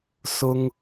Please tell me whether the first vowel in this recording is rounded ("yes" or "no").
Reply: yes